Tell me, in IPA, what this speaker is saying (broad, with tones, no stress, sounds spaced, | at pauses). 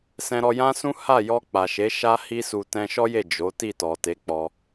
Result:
s ɛ̃˧ ɾ ɔ˧ j ã˦ s ũ˦ h a˦˨ j ɔ˧ k͡p a˨ ʃ e˨˦ ʃ a˦ h i˦ s u˧ t ɛ̃˧ ʃ ɔ˦ j e˦˨ d͡ʒ o˨˦ t i˦˨ t ɔ˨ t e˨˦ k͡p ɔ˧